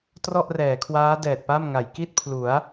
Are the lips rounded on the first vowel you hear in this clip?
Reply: yes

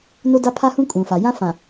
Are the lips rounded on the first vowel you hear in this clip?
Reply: yes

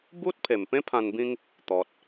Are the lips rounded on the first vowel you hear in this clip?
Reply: yes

